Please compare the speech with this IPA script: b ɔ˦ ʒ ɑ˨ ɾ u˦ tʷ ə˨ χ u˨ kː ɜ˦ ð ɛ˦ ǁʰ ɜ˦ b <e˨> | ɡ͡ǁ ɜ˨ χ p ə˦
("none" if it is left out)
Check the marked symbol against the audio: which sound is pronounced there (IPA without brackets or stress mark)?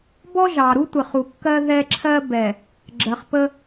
ɛ˨